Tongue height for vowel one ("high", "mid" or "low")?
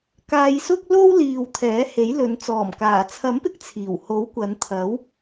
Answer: low